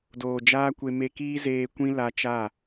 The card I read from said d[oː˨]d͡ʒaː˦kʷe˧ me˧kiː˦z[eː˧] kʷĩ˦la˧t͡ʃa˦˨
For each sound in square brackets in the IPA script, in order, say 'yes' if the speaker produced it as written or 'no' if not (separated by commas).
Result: yes, yes